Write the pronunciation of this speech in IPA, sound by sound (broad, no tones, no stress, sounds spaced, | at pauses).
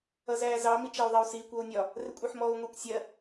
ʌ z æː z ɑ m i t͡ʃ æ u̯ ðˤ ɛ u̯ s iː kʷ ɔ u̯ nʲ ɒ | r ɪ kʷʼ ɜ ħ m ɔː u̯ ŋʷ ɛ kʷ sʲ ɜ